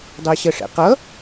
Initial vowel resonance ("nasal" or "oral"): oral